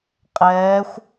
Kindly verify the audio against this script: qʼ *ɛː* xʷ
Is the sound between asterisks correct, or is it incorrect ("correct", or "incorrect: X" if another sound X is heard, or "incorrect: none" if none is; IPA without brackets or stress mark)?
correct